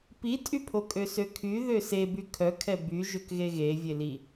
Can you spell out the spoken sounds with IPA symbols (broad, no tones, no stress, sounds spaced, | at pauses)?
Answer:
p i tʼ y pʰ o kʼ ø s ø kʰ y ð ø s e b y kʰ œ kʰ ɛ b y ʒ ø k ɣ e ɣ e vʲ e l i